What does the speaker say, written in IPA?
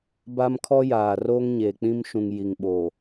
ba˦mkʰɔ˦jaː˨ roː˦ŋɲeː˨k͡pĩ˦mʃũ˨ŋ ji˨ŋɓoː˨

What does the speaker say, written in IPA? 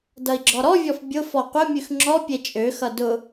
dʌi̯ɡ͡ǁɔɾɔvʲɔf bʲʊ fɔqʷəmʲʉx ŋ͡ǁɔ pʲet͡ʃʼøxʌ dʊ

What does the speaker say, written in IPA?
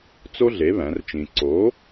t͡so˥ɮe˨˥ βæ̃˨˥rt͡ʃĩ˧ ǀo˨˥

